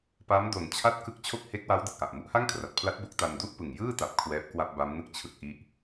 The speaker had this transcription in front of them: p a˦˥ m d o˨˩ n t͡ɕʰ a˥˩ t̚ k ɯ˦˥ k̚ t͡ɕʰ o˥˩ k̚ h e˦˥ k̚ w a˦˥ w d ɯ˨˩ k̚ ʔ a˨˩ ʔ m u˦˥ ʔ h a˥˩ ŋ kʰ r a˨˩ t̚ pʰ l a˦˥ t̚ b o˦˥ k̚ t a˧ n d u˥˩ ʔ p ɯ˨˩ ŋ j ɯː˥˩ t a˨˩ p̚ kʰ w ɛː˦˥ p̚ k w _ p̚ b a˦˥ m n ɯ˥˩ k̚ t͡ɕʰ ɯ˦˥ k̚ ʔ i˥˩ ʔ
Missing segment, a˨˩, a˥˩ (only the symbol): a˥˩